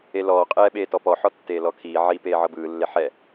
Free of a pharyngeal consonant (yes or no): no